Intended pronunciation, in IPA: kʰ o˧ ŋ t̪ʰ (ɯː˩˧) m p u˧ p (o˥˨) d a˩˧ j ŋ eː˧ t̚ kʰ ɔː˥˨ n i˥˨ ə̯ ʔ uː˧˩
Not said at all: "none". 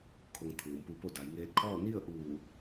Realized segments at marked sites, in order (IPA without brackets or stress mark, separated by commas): ɯː˩˧, o˥˨